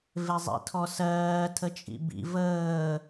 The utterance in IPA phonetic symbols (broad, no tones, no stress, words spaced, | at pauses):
vezˤḭtʰɔsɜː tʰət͡ʃʼḭbḭ vəː